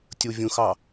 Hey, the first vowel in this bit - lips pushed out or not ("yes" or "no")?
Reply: yes